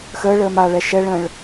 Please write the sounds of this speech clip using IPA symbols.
x əː ɭ əː m a ɭ ɛ ʃ ɛ ɭ ə̃ː ɭ

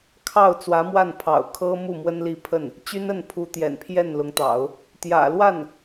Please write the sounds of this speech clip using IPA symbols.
kʰ ɑ˥˩ ʊ̯ t͡s w ä˧˥ m w a˥˩ n pʰ ɑ̰˨˩ ʊ̯ kʰ ɤ˥ m u˥˩ m w ə˥ n l i˥˧ pʰ ə˥˩ n | t͡ɕ y˥ n ə˥˩ n pʰ u˧˥ t̪ j ɛ̰˨˩ n pʰ j ɛ˥˩ n l ʊ˧˥ ŋ t̪ ɑ̰˨˩˦ ʊ̯ | t̪ j ä̰˨˩ l w a˥˩ n

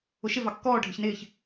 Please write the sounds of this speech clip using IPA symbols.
ʊ ʃ ɪ v ɑ kː ɔː ɖʱ ɪ ç n ɪː ç

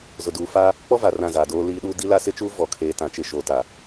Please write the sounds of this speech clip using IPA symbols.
z ʊ˨ d uː˨ f aː˦ | k͡p ɔ˦ v a˨ r ã˦˨ z aː˨ d oː˦ l iː˦ ɗ uː˦ d i˦ l a˦ s ɪ˦ t͡ʃ uː˦ v ɔ˨ kʰ eː˨ t ã˨˦ t͡ʃ ɪ˨ ʃ oː˨ t a˨

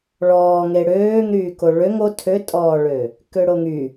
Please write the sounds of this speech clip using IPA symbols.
ɭ ɔː ŋ e ɽ øː ŋ ɾ yː k o ɭ ø ŋ o tʰ ø tʼ ɔː ɭ ø | k ø ɽ o ŋ y

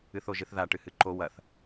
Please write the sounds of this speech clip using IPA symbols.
ɨ θ o ʒ ɨ θ ð a ʈ ɨ h ɨ ǃ o w ɐ θ

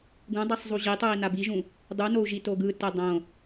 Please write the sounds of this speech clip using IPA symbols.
ɡ ũ dˤ ɯ sˤ zˤ u ʑ i tˤ ɯ i̯ n a b i ʒ ũ | dˤ u n o u̯ ʒ i t o ɡ ɯ t ɛ dˤ õ

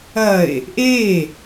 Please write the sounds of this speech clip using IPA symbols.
ɐ e̯ | ʔ e

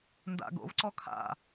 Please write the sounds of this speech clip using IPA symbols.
n d a̰ ɡ o̰ v ǀ ɔ kʰ a̰

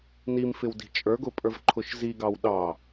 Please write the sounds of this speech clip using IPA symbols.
n i m f ɪ w d i̤ t͡ʃʼ ə˞ ɡ ʊ pʼ ə˞ v ǃʰ ʊ ʃ z i ɡ ɑ w ɗ ɑ

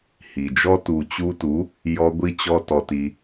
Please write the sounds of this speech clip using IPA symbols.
h i˨ d͡ʒ ɔ˦ t u˨ t͡ɕ u˧ t u˨˦ | j ɔ˧ ɡʷ i˧ t͡ɕ ɔ˧ t ɔ˧ t i˧

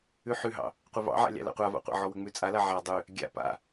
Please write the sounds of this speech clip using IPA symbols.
ʉ ħ ʉ ɦ ɑ̰ | qʷ ɛ v ɑ̰ ʕ a̰ lʲ ɑ̰ l a̰ qʷ a v a̰ qʷ a̰ ʕ ɔ w ə ŋ͡m ʉ t͡sʼ a l a ʕ a dˤ ʉ | ɡʲ a̰ p a̰

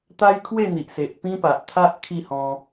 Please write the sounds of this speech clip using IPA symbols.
t̪ a˦ j kʰ w e˥˧ n̪ i˨ ʔ s e˨ ʔ p ĩ˦ p a˨ ʔ t̪ʰ a˦ ʔ kʰ i˥˧ h ɔ̃˧

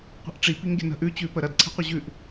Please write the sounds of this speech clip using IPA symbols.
qʷ i̤ ʔ ʈ͡ʂ i p i ŋ ɡʲ ə̤ n ə̤ ʔ ʉ t͡ɕ ʉ p ə ɾ ɐ d ǀʰ ɛ̤ qʷ ə ʑ ʉ ʔ

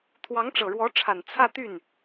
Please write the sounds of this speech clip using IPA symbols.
t̪ʰ w ɑ˧˥ ŋ ʈ͡ʂ ɤ˨˩ ɻ w ɔ˧˥ ʈ͡ʂʰ a˨˩ n t͡sʰ ä˥˧ t̪ y˥˩ n

